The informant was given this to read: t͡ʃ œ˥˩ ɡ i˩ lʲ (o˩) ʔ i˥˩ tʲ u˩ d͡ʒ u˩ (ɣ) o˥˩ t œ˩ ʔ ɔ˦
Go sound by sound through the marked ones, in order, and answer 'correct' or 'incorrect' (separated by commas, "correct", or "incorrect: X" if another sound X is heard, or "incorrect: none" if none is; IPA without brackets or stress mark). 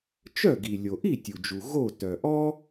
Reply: correct, correct